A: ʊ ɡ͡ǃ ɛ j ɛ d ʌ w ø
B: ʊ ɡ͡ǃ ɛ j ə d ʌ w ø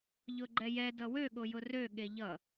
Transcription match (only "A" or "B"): A